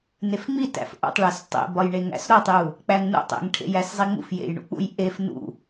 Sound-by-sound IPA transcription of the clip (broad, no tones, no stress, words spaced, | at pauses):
nefŋ͡mi tæ̰fʔṵtˤɭæs tˤḛbɒjɳeŋæ̰s ɾotˤju | k͡pæŋnṵtˤḛŋʈʰḛj æszˤiŋ͡mṵfjḛj ɳṵk͡pṵj ʔef nṵ